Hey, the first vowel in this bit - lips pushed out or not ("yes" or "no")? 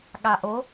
no